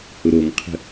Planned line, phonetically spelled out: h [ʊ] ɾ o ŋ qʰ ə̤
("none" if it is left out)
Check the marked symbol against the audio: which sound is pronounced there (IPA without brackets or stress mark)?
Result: ʊ